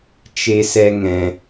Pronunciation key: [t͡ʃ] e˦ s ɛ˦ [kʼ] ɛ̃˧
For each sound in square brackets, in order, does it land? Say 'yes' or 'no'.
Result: yes, no

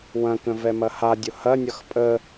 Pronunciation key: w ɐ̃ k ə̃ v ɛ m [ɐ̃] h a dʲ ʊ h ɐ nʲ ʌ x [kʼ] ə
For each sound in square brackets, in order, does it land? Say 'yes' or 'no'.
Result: no, no

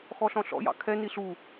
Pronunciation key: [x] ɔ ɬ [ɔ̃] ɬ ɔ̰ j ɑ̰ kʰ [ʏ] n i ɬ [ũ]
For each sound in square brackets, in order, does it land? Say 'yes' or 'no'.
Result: yes, yes, no, no

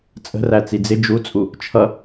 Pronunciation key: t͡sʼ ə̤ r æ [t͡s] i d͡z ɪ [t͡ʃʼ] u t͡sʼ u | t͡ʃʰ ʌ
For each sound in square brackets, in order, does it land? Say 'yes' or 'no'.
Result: yes, no

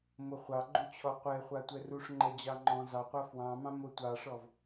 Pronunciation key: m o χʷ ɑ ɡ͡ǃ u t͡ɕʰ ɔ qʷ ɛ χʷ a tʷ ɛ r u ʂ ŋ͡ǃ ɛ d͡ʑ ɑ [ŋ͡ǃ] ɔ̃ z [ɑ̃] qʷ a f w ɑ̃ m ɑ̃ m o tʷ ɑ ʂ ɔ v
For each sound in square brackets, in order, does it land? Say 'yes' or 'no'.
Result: yes, no

